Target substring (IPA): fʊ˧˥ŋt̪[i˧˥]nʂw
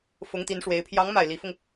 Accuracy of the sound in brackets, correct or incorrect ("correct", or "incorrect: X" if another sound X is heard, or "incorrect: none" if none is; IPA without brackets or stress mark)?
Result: correct